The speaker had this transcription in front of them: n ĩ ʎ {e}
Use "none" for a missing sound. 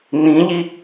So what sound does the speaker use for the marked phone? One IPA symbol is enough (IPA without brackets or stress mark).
i